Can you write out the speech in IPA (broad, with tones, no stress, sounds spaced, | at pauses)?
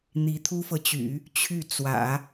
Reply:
n̪ i˧˥ t̪ʰ u˥ f ɤ˨ t͡ɕ y̰˨˩˦ | t͡ɕʰ y˥˩ t͡s w ä̰˨˩˦